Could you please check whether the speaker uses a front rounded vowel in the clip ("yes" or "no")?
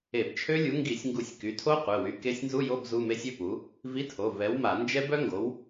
yes